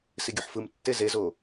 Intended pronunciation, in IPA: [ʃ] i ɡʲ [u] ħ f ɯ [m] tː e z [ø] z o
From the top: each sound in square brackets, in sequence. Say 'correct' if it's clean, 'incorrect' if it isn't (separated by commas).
incorrect, correct, correct, incorrect